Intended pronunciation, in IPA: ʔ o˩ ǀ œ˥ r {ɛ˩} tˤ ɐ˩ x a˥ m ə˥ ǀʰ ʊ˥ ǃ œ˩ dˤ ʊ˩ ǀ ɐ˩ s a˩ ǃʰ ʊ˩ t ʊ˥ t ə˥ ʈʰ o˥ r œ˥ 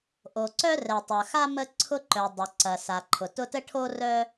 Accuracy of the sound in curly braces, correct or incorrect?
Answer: correct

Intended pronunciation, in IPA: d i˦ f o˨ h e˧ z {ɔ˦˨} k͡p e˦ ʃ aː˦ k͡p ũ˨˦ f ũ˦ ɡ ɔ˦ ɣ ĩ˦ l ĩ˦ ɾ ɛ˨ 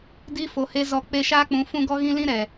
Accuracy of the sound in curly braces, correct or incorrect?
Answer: correct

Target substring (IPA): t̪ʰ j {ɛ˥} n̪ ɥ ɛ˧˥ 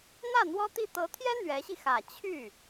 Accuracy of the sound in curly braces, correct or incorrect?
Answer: correct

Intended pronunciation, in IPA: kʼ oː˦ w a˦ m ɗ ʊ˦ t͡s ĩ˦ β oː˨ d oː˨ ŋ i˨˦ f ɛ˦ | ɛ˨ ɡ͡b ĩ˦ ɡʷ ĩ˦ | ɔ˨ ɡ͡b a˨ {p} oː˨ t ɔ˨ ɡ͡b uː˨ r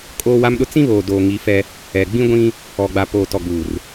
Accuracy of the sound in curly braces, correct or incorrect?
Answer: correct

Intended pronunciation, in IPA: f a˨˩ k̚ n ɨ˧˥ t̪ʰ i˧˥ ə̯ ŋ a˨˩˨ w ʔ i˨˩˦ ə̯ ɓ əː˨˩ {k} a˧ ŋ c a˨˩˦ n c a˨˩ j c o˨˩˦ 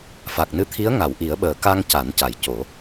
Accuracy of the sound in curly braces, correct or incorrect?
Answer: correct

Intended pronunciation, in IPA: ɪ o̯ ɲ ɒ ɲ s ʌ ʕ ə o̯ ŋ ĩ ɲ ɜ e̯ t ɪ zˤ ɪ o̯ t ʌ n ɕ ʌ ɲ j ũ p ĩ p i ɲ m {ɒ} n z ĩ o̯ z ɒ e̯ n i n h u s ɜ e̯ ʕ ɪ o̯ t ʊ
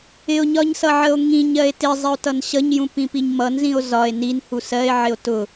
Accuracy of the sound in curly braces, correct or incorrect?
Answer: incorrect: ʌ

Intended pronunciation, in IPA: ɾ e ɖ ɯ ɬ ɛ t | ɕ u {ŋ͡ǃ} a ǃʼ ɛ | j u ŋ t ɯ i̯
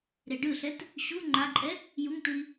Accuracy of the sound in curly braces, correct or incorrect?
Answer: correct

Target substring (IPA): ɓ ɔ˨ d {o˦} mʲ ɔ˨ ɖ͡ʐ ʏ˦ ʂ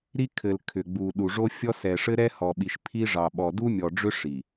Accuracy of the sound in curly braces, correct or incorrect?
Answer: incorrect: u˦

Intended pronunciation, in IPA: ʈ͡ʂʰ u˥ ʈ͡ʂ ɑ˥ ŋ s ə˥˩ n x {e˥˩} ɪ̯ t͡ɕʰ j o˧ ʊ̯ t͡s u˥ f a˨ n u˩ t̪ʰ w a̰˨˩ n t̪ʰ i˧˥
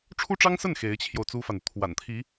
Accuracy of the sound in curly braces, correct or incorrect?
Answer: incorrect: e˧˥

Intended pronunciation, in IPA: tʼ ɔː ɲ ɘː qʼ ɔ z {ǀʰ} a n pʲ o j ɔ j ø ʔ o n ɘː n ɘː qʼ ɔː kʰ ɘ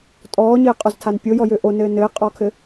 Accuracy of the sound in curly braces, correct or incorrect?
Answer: incorrect: tʰ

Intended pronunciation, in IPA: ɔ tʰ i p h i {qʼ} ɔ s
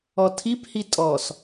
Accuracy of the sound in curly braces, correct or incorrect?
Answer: incorrect: tʼ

